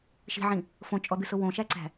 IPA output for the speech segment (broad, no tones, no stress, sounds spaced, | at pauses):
ʃ i̤ ʕ ĩ | f õ t͡ʃʼ ɔ d̪ ɨ s ʊ w õ ʃ æ ǀ æ̤